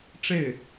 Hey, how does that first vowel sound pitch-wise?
falling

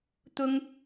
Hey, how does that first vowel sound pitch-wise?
high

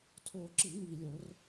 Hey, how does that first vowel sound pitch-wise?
low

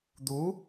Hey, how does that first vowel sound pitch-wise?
rising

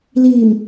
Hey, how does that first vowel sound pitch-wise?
low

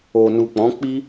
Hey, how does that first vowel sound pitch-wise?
low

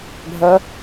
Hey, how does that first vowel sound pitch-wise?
rising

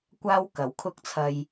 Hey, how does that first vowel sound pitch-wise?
high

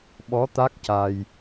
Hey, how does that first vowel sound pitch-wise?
rising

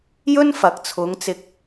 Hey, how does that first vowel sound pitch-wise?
high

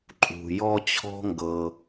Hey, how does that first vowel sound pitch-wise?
low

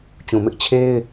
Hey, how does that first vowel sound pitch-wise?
low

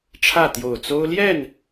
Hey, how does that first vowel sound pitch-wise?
falling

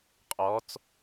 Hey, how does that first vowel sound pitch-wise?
rising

